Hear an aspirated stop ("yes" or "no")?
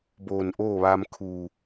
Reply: yes